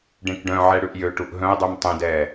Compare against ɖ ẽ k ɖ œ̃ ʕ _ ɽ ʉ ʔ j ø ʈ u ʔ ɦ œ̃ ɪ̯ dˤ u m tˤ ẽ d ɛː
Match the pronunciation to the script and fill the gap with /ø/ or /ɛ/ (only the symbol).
ɛ